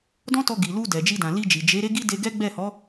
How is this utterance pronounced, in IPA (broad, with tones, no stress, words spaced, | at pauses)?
dɔ̃˦tɔ˧ɡi˨lu˧ dɛ˨d͡ʒi˧dã˨ li˧d͡ʒi˨ d͡ʒe˨˦ɾe˦ ɡi˦de˧ɡɛ˦ ɡ͡bɛ˦˨hɔ˨˦